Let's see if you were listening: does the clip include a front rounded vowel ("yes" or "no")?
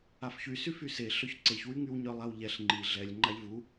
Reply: yes